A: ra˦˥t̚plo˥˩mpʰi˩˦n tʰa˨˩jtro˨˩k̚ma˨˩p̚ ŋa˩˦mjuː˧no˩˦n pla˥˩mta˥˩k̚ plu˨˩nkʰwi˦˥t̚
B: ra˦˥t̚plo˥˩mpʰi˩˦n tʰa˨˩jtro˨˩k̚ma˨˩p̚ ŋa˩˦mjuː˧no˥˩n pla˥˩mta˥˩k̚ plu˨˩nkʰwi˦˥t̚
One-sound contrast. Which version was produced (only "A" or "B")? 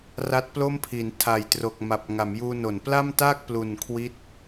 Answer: A